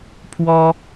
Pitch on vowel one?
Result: high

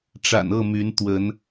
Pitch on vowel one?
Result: low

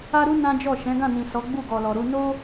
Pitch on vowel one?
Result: high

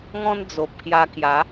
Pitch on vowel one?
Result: high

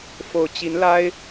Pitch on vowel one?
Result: low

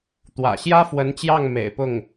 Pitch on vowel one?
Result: low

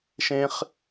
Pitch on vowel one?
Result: low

